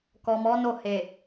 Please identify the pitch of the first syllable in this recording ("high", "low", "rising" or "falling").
low